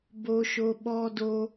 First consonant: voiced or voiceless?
voiced